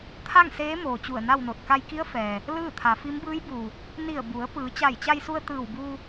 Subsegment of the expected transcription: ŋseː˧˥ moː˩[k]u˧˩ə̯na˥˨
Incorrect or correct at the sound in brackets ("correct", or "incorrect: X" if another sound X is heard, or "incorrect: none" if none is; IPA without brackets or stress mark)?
incorrect: t͡ɕ